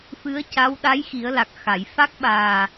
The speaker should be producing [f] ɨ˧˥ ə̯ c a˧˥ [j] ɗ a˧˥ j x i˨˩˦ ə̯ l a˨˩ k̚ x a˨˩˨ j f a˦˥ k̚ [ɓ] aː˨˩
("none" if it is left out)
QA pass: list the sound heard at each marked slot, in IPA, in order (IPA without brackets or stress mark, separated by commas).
f, w, ɓ